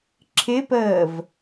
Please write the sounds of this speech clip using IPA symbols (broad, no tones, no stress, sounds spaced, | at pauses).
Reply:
ǁʰ ɪ p əː v